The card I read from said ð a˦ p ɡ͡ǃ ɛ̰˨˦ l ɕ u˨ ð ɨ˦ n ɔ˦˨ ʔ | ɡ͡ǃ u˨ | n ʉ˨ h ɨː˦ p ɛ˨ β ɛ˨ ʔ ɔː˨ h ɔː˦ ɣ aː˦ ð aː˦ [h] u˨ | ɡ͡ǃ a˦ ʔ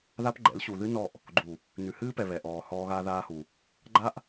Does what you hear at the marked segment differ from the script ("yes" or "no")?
no